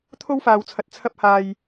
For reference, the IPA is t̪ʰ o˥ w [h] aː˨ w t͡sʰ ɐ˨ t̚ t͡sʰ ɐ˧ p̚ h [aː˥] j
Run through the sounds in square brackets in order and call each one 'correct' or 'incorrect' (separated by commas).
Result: incorrect, incorrect